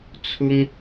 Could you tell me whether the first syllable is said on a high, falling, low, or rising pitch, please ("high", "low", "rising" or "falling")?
high